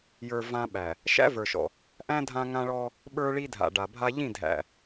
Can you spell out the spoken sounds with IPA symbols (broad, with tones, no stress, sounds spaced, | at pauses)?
j ə˞˨ v ã˦ ɓ æ˨ | ʃ æ̰˦ v ə˞˨ ʃ ɔ̰˨ | ʔ æ̃˦ dʱ ã˦ ŋ ã˦ ɭ ɔ˦ | ɓ ə˞˦ ɭ i˦ dʱ a̰˨ ɖ a˨ bʱ a˦ ʎ ĩ˦˨ dʱ æ̰˨